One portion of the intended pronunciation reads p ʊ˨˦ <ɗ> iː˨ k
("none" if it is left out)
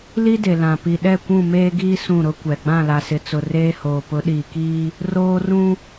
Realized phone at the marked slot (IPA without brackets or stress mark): ɗ